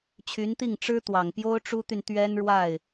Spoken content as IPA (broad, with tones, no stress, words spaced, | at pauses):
t͡ɕʰy˧˥nt̪i˥˩ŋ ʈ͡ʂɻ̩˥ t̪wɑ˨˩ŋpjo˥ʊ̯ʈ͡ʂu˥t̪y˨n t̪ɥɛ˥nɻwa˥˩ɪ̯